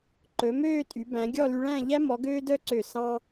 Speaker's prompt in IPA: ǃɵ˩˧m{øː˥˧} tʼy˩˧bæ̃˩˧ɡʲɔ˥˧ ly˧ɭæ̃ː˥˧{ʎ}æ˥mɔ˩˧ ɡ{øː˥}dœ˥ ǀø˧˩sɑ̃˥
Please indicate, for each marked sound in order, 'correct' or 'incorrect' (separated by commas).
correct, correct, correct